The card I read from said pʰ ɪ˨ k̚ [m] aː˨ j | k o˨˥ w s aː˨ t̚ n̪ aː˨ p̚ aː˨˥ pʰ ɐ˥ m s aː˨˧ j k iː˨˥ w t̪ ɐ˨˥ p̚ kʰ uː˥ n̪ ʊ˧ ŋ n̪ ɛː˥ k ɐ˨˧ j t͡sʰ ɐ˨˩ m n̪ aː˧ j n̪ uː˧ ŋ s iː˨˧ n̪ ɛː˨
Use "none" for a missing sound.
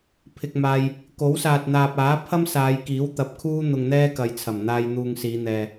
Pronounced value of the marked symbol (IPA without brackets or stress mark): m